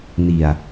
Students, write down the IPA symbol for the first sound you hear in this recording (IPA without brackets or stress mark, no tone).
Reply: n